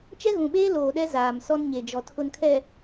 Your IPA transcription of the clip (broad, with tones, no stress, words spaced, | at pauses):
t͡ʃɛ˦ɣũ˨ɓeː˦loː˨ ɗɛ˦ zaː˨msɔ˦nɲe˨d͡ʒɔ˨ tʰʊ˨nkʰɛ˨